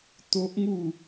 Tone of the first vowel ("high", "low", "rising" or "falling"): high